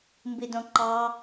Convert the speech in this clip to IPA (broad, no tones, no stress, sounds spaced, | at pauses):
m b i d õ ǃ ɑ